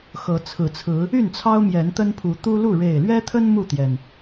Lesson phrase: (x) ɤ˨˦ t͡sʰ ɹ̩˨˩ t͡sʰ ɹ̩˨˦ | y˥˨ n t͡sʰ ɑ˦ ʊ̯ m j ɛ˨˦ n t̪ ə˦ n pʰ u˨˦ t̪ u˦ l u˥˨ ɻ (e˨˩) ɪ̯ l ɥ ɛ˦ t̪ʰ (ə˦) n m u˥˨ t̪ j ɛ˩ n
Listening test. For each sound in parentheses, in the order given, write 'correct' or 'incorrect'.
correct, correct, correct

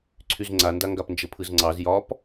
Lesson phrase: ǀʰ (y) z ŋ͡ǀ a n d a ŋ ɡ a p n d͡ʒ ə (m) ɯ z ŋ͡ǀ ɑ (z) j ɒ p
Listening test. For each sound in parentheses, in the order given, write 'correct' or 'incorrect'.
correct, incorrect, correct

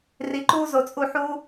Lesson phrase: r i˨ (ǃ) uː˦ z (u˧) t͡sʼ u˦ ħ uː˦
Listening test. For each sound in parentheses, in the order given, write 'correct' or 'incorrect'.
correct, incorrect

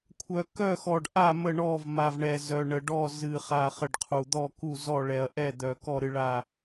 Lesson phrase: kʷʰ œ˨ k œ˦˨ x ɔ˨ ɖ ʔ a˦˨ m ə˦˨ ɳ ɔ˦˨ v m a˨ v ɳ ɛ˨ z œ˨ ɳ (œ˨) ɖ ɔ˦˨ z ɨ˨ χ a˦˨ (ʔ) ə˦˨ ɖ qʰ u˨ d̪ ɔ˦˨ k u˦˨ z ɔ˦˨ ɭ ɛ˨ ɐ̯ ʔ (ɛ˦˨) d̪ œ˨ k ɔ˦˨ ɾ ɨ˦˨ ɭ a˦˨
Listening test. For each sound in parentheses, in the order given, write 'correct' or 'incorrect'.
incorrect, incorrect, correct

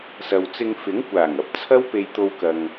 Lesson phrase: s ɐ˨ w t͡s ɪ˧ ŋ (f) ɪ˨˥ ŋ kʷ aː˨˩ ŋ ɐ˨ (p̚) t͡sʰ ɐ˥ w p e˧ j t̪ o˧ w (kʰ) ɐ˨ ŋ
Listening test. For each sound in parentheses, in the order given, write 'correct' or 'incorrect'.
correct, correct, incorrect

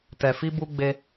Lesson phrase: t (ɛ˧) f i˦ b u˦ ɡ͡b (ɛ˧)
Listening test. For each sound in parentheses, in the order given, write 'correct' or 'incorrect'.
correct, incorrect

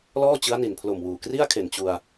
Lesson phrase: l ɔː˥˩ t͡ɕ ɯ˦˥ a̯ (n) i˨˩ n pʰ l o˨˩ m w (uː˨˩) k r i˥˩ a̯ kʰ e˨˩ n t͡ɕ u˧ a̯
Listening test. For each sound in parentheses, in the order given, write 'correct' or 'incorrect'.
correct, correct

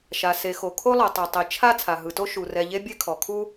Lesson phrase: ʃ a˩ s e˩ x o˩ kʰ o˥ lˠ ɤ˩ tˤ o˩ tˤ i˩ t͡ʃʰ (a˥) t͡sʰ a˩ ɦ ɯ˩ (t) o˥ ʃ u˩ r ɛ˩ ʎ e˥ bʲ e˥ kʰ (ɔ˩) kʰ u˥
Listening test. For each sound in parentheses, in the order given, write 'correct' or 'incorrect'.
correct, correct, correct

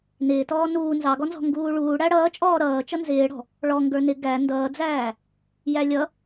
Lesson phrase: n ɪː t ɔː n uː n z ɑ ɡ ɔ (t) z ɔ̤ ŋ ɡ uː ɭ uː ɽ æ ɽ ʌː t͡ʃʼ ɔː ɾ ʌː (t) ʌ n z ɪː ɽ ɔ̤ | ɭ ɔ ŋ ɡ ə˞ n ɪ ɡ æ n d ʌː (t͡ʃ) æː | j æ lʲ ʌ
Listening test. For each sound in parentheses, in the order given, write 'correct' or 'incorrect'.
incorrect, incorrect, incorrect

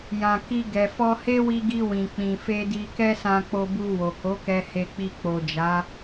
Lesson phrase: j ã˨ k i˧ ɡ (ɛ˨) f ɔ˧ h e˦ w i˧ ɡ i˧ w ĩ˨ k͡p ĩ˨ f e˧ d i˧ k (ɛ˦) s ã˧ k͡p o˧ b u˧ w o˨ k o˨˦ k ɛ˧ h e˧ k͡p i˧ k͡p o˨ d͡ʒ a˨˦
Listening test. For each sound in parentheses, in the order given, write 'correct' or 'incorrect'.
correct, correct

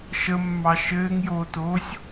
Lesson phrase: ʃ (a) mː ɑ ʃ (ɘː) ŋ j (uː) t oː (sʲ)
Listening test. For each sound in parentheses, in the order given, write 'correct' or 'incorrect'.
incorrect, correct, incorrect, correct

